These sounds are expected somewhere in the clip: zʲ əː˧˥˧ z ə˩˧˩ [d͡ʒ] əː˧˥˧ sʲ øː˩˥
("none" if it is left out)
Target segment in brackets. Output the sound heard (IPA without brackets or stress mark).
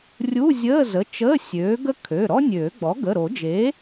t͡ʃ